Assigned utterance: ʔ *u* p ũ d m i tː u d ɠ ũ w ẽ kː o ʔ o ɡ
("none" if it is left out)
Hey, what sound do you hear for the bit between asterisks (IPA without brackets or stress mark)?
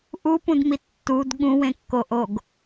u